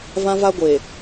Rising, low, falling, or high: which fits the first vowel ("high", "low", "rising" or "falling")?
high